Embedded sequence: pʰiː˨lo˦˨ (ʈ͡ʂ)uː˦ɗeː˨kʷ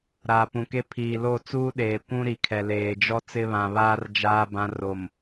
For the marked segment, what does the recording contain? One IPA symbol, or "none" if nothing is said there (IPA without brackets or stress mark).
t͡s